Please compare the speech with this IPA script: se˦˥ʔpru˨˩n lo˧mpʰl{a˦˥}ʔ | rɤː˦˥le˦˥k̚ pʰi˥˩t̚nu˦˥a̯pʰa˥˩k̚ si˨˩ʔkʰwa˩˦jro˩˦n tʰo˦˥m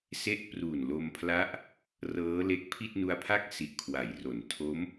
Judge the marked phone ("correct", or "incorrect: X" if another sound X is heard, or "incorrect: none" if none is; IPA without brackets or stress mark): correct